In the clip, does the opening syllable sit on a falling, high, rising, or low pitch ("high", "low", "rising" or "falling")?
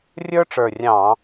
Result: high